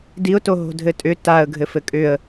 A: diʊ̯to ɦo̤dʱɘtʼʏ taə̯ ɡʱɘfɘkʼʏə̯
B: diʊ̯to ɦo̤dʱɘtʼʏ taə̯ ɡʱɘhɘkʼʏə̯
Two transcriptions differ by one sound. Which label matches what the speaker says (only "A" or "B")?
A